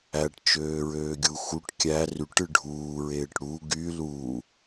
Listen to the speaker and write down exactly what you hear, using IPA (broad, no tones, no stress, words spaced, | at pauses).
æʈt͡ʃøːɹøːɡʲu xuʈ kʲæ ryʈ ɯɖʱuːɹeːʈ ɽu ɡy luː